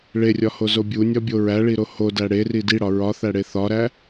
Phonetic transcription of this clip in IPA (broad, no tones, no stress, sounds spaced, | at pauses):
ɭ e rʲ ɒ h o z o bʲ u nʲ ɒ bʲ o ɹ æ ɭ i ɾ o h o d æ ɽ e r i d i ɽ ɒ ɹ ɒ θ æ ɽ e θ ɒ ɾ æ